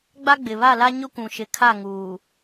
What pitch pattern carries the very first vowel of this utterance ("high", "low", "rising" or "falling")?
high